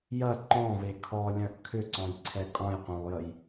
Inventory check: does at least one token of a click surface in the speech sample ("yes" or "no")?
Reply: yes